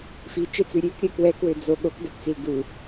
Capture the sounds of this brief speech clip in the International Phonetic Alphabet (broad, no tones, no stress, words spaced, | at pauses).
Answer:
fit͡ʃet͡sʉ ɾʲøkɾʲœ kwɛkwø d͡zo ɠokdœpt͡sil du